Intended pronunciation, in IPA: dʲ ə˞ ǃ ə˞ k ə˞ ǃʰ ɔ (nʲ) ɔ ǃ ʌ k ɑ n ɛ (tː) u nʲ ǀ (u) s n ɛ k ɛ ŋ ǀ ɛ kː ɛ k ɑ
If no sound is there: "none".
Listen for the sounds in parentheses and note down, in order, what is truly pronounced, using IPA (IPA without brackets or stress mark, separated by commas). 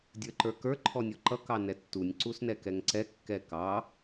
nʲ, tː, u